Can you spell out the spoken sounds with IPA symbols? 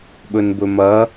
ɓ ɵ n b ɵ m ɐ

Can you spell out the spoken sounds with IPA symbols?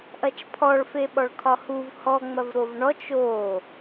ʔ ɐ t͡ʃ pʰ ɔ ɭ f e ɓ ɔ ɭ kʰ ɒ h u v h ɔ ŋ͡m ɐ v ɾ o v ɳ ɔ t͡ʃ o

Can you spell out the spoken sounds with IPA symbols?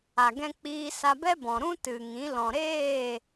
a˨ ɡ ɛ̃˧ k͡p iː˧ s a˧ b ɛ˦ b ɔ̃˨ ɾ ũ˦ t ɨ˨ ŋ ĩ˨˦ l ɔ̃˨ ɾ eː˦˨

